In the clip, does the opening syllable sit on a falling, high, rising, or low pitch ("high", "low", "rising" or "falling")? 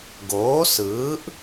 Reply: rising